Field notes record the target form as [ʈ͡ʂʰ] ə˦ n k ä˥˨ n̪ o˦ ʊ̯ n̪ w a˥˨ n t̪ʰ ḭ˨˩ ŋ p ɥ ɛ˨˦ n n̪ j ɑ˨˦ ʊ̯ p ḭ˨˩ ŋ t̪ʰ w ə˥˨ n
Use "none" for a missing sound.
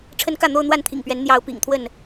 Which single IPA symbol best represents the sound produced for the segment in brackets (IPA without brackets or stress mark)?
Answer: ʈ͡ʂʰ